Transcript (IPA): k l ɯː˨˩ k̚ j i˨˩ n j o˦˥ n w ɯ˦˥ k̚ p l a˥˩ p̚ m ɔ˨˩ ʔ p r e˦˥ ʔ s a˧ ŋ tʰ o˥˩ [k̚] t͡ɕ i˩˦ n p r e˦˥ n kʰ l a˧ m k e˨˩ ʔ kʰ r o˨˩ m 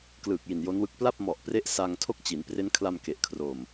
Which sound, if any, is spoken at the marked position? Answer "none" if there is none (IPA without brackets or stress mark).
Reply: k̚